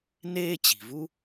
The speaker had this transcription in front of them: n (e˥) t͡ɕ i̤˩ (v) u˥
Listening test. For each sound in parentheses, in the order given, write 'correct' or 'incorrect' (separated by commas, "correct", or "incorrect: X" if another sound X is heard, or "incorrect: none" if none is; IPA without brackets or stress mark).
incorrect: eː˥, correct